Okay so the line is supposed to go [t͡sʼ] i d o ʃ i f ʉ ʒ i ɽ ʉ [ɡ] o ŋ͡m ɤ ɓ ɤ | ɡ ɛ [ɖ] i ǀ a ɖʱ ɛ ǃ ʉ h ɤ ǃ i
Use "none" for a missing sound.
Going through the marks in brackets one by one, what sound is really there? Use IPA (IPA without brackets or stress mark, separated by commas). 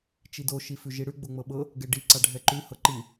t͡ʃ, ɡ͡b, ɖ